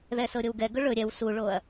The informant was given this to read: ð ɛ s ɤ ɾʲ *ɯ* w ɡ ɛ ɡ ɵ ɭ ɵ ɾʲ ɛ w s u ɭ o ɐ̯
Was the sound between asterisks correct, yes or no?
no